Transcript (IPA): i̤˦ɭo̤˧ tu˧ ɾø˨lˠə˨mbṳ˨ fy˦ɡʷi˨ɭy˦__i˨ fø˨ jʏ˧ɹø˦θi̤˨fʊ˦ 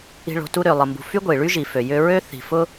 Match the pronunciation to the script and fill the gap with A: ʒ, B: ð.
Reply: A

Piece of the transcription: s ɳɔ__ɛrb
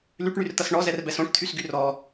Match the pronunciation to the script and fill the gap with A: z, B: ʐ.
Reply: A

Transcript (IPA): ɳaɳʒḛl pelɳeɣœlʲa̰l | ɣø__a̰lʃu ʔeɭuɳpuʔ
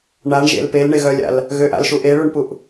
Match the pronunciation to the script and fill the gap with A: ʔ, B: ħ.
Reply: A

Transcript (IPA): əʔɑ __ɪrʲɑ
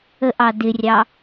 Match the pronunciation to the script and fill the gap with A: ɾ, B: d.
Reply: B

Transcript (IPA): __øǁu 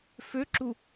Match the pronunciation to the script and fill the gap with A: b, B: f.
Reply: B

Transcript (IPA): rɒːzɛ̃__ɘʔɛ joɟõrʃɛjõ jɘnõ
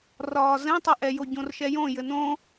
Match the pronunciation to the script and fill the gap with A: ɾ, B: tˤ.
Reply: B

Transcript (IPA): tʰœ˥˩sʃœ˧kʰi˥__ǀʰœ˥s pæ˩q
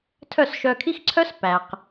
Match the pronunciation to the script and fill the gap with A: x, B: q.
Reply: A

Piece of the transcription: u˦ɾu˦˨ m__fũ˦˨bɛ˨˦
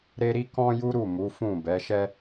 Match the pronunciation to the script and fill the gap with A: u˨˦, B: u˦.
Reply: A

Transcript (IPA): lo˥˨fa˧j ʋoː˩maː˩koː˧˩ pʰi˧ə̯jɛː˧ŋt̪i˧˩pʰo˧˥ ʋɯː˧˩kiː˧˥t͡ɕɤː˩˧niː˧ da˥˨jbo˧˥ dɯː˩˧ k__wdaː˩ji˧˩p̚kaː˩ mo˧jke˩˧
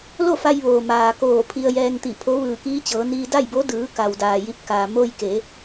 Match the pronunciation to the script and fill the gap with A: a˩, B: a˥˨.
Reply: A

